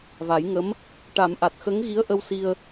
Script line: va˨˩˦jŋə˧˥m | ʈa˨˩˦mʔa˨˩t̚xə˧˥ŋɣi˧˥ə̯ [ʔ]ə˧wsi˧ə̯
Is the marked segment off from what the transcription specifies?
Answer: no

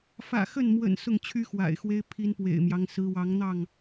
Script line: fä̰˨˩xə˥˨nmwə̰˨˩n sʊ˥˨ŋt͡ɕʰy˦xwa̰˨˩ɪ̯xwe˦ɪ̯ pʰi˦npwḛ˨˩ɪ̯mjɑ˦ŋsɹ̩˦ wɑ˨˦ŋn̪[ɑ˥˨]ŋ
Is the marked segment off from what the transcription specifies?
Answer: no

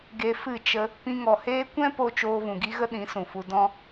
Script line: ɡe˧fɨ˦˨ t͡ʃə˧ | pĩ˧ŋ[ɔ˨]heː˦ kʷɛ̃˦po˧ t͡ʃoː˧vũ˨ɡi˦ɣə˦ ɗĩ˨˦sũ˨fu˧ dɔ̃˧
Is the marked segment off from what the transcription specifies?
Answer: no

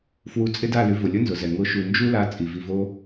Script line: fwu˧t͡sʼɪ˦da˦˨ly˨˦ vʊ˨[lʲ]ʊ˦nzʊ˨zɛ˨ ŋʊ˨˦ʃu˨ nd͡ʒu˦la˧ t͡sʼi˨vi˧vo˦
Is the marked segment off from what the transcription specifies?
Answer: no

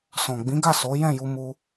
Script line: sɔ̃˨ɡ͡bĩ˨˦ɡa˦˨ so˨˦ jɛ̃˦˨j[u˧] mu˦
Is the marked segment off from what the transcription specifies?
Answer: no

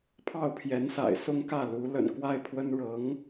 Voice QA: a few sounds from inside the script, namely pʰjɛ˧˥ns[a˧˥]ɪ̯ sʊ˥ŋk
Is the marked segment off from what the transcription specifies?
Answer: yes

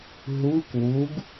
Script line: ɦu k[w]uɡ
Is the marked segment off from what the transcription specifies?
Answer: no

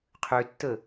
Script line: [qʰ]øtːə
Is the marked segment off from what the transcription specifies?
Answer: no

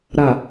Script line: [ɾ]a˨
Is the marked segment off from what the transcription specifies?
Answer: no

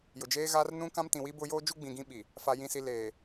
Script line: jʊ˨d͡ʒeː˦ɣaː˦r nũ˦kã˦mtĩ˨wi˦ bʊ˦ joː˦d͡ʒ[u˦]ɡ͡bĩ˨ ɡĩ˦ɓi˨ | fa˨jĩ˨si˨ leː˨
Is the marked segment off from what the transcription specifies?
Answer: no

